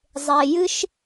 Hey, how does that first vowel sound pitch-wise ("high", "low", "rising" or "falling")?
low